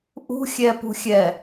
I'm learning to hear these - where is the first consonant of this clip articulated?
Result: throat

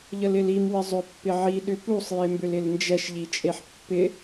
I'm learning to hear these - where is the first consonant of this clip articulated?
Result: palate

